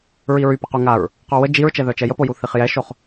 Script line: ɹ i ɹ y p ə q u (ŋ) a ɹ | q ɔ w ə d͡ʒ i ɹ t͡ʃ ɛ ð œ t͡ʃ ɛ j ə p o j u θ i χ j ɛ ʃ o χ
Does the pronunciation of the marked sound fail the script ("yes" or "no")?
no